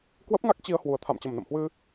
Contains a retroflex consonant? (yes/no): no